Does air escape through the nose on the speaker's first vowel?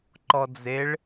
no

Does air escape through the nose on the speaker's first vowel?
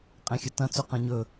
yes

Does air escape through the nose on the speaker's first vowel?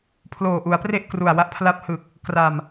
no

